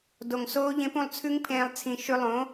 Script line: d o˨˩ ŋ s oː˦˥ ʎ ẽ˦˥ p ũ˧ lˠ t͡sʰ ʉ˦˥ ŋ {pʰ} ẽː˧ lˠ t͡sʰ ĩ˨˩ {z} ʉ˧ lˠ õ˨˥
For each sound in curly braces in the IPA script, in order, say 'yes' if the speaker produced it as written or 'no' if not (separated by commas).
yes, no